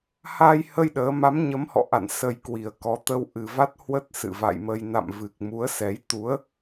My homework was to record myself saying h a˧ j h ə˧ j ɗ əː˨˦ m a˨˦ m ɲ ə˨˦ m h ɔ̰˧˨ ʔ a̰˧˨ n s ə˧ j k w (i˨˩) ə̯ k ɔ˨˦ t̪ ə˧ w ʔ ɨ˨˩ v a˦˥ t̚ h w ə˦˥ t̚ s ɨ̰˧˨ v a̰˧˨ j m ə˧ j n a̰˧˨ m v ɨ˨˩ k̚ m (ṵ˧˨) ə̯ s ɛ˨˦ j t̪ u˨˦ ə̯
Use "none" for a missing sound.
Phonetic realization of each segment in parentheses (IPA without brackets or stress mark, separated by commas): i˨˩, u˨˦